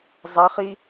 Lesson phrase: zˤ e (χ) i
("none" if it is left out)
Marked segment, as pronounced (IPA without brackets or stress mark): χ